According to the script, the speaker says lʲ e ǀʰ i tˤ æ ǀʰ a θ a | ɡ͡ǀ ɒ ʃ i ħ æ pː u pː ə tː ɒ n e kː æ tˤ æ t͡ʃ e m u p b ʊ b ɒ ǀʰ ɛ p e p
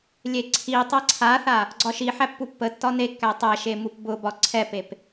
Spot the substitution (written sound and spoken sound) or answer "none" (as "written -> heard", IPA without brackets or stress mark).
t͡ʃ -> ʃ